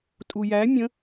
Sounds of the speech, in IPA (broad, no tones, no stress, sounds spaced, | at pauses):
tʼ u j æ mʲ ə̃